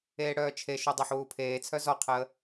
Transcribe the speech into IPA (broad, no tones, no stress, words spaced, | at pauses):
eːɽœːt͡ʃʰeʃu dˤeħwuːpʰeːt͡sʰœ zɔqʰəː